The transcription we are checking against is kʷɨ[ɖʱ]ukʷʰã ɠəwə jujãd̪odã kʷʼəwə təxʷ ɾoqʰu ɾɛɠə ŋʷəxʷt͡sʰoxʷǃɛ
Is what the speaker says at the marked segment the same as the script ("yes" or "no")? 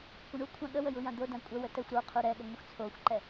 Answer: no